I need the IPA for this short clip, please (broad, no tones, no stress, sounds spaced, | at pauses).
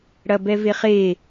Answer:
ɽ ɐ b ɛ v e χ e